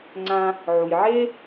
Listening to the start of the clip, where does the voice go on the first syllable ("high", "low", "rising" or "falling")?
high